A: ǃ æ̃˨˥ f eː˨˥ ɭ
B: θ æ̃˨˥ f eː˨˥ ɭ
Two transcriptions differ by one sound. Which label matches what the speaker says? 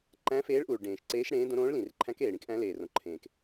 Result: A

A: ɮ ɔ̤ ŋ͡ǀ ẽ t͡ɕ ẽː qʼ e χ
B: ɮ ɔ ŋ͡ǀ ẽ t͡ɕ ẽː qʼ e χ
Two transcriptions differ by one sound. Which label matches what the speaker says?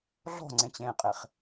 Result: A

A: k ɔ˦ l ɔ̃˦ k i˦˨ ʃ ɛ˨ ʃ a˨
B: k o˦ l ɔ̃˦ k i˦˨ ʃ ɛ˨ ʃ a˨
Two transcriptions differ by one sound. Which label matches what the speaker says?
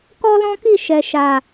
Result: A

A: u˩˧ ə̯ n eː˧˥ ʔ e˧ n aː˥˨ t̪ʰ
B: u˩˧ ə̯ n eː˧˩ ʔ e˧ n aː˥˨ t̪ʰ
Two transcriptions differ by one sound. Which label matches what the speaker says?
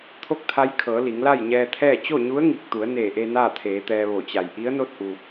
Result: B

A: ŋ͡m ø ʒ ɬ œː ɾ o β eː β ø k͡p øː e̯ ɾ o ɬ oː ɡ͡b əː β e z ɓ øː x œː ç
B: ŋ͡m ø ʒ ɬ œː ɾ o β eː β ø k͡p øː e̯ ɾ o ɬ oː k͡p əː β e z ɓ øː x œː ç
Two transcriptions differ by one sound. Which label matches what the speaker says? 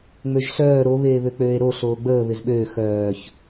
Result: A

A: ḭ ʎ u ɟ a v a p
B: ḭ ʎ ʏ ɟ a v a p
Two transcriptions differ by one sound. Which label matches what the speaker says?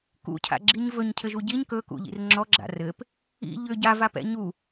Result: B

